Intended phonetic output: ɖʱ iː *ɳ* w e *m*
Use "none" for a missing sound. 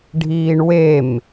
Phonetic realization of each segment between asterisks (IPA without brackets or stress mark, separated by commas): ɳ, m